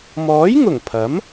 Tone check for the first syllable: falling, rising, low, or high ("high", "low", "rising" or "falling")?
rising